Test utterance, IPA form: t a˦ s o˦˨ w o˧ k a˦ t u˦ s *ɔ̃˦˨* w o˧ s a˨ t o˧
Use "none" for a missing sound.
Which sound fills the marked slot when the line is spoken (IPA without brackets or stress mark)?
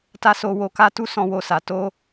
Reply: ɔ̃˦˨